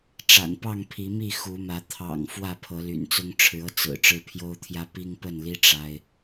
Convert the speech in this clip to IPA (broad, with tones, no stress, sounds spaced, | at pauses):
ʈ͡ʂ a̰˨˩ n p ɑ˥˨ ŋ pʰ i˨˦ m i˥˨ x u˨˦ m ä˨˦ t̪ʰ ɑ̰˨˩ ŋ f w ä˥˨ pʰ ɤ˨˦ l y̰˨˩ n t͡s ʊ˦ ŋ ʈ͡ʂʰ ɻ̩˨˦ ɤ˧ t͡s ɹ̩˨˩ ʈ͡ʂ ɻ̩˦ pʰ j o˦ ʊ̯ t̪ʰ j ä˦ p i˦ ŋ p ə˥˨ n l i˦ ʈ͡ʂ a˦ ɪ̯